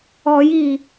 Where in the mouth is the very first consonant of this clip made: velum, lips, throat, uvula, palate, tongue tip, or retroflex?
palate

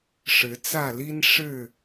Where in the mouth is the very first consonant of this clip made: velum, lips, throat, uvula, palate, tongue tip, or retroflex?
retroflex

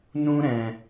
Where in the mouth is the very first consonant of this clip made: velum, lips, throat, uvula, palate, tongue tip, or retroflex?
tongue tip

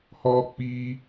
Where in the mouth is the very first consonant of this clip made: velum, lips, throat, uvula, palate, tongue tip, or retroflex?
throat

